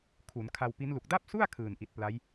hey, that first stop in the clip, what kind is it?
aspirated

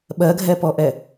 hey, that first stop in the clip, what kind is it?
implosive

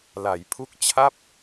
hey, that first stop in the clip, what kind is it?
aspirated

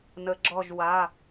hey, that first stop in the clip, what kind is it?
click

